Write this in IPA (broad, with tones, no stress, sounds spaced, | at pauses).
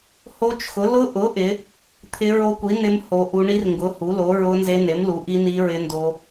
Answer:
h o˦˥ t͡ʃ x ʊ˨˥ l ʊ˦˥ ʔ ʊ˨˥ ʔ ɪ˨˥ | t̪ʰ ɪ˦˥ ɹ o˦˥ kʷ i˨˥ n ɪ˦˥ m h o˦˥ ʔ u˦˥ ɳ i˦˥ r ŋ ɡ ʊ˨˥ h u˨˥ l o˨˥ ɹ ʊ˦˥ n z e˦˥ n e˨˥ m l u˨˥ ʔ i˦˥ n i˦˥ ɹ ɪ˦˥ n d o˦˥